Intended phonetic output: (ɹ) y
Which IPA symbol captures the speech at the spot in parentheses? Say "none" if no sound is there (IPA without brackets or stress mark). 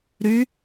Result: ɾ